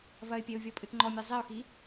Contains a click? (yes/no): yes